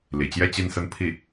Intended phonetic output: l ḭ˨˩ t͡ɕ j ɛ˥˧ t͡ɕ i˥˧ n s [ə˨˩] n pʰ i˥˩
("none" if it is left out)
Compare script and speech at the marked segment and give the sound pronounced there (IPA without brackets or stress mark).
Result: ə˥˧